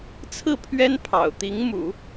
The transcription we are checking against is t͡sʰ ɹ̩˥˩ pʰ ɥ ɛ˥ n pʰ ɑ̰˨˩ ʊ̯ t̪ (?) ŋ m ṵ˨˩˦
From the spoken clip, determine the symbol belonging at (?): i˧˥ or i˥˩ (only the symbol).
i˧˥